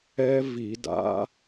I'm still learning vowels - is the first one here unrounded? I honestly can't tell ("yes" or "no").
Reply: yes